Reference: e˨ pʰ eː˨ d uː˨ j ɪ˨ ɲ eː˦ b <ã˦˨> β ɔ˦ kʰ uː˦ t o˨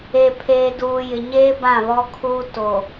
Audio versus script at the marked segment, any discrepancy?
no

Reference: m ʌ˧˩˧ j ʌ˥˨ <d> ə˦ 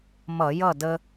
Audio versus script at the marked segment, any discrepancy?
no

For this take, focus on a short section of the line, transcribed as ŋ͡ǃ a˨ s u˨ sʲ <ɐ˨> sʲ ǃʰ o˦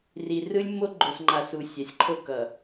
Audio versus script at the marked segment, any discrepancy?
yes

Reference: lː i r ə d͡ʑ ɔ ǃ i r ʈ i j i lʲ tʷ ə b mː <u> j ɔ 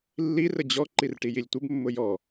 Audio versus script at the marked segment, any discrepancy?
yes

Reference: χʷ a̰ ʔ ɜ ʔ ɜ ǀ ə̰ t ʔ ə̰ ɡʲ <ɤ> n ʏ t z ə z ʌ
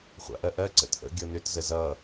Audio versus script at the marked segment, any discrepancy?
no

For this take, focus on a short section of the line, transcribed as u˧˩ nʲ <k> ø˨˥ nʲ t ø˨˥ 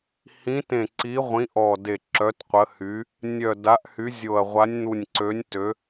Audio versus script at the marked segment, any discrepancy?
yes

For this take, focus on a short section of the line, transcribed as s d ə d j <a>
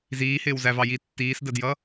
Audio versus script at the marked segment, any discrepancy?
yes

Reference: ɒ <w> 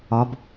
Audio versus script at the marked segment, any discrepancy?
yes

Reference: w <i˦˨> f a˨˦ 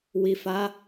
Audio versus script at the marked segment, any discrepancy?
yes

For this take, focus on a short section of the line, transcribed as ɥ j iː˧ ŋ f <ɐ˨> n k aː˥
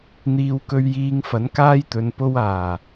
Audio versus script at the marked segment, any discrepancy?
yes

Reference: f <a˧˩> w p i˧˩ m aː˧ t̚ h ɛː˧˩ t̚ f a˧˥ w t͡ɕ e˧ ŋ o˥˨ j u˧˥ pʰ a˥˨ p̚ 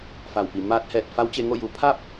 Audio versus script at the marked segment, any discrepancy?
no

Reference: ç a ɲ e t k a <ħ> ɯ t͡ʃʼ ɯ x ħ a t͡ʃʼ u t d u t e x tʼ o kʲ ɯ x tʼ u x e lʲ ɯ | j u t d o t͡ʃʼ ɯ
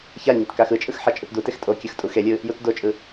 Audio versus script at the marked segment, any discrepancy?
yes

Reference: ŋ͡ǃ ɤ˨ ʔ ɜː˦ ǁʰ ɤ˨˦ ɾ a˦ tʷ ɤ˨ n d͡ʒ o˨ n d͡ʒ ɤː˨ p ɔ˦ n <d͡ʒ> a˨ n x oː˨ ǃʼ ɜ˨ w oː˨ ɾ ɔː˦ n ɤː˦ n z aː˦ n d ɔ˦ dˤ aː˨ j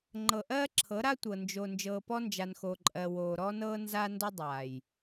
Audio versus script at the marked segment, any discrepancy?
no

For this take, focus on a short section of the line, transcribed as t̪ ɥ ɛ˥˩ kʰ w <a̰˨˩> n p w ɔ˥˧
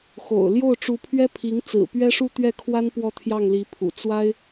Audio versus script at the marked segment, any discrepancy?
yes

